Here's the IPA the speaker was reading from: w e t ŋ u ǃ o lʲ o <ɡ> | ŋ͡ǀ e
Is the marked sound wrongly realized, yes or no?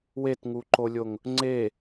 yes